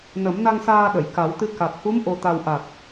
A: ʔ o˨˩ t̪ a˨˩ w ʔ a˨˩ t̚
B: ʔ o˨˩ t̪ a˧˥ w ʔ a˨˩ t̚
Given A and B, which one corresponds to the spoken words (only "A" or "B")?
A